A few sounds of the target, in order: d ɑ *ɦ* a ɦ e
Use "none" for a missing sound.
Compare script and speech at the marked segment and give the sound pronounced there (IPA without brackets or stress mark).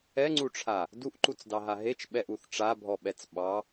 ɦ